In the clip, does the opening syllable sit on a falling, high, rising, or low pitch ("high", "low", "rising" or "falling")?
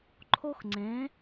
high